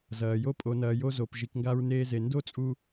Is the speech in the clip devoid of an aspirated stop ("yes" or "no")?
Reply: yes